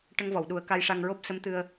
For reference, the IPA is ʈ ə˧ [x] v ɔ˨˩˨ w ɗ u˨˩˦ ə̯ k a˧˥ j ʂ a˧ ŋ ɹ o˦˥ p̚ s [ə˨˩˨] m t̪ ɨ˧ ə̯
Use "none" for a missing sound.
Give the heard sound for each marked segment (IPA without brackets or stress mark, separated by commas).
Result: ŋ, ə˧˥